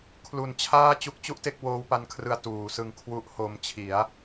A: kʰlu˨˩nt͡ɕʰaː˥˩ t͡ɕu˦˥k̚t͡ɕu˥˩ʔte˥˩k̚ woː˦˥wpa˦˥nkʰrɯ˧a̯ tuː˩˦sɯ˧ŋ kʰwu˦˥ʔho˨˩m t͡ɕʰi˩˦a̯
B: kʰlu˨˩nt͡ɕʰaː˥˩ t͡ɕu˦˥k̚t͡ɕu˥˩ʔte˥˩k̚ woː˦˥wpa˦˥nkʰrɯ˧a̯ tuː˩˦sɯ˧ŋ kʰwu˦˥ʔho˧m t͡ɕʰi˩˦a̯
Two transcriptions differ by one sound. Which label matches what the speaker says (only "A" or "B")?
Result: B